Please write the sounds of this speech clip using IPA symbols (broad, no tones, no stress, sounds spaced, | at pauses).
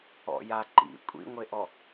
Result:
ɔ̰ j a ǃ ḭ kʷʼ ḭ ŋʷ e ʔ ɔ